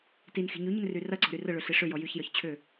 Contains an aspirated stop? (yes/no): yes